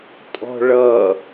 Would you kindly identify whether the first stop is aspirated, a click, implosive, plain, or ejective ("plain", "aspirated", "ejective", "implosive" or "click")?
ejective